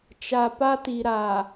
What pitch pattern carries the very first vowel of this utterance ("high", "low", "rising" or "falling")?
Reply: low